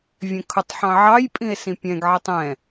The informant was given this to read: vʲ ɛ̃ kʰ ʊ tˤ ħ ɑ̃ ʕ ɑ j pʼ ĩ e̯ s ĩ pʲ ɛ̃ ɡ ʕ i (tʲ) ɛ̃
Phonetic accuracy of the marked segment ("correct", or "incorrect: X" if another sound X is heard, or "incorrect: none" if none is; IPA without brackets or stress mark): incorrect: tˤ